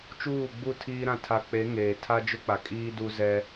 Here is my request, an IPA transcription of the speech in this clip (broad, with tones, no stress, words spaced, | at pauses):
t͡ʃuː˦˨ɡ͡bu˦˨tʰiː˦ɾã˦˨ tʰa˨k͡pe˨˦ ŋeː˨ tʰa˦d͡ʒʊ˦k͡pa˨ kʼiː˦du˦ zɛ˦